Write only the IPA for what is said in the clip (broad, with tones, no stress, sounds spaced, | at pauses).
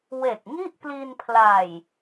w e˨˩ k̚ ŋ i˥˩ ʔ p l i˧ n pʰ l a˨˩ j